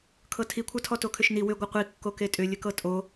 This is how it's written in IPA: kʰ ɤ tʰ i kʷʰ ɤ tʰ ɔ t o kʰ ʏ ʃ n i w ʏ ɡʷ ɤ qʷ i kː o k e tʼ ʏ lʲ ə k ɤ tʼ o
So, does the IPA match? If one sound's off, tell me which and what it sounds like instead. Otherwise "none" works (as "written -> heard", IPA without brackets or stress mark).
none